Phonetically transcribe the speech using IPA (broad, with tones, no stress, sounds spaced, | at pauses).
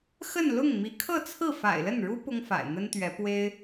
x ə˥˧ n l ʊ˥˩ ŋ m i˧˥ kʰ ɤ˥˧ t͡sʰ ɹ̩˥˩ f a̰˨˩ ɪ̯ l ə˥˩ n ɻ u˥ p ʊ˥ ŋ f a̰˨˩ ɪ̯ n̪ ə˥ n t̪ ɥ ɛ˧˥ p w e˥ ɪ̯